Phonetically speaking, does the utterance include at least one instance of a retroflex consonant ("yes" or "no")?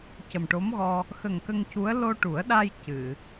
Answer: yes